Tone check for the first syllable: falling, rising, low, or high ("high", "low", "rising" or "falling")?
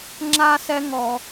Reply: high